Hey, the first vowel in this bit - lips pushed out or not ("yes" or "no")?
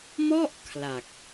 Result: yes